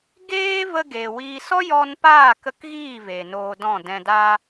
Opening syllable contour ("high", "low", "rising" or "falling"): high